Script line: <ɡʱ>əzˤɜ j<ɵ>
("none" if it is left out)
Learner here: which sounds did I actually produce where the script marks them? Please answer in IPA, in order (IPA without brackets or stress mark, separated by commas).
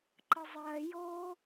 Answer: ǃ, o